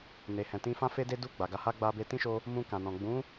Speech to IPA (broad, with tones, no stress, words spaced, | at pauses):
ne˨hɛ̃˨ tĩ˧fã˦ fe˦de˦du˦˨ ɡ͡ba˨ɡa˧ ha˦ ɡ͡ba˧be˧ tĩ˦ʃo˧ | mũ˧ kã˨nɔ̃˨ ɡ͡bũ˨˦